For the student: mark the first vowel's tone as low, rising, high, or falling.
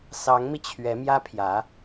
rising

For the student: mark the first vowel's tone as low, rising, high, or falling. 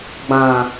low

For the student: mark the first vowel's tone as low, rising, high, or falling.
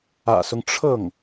low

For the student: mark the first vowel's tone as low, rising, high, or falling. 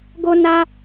high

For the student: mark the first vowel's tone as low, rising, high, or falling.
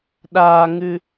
high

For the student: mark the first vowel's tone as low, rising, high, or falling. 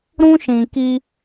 high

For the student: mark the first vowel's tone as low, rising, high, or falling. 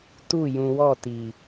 falling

